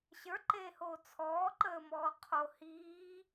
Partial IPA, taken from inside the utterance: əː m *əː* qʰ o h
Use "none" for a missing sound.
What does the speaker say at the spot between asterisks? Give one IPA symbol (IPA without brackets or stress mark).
ɔː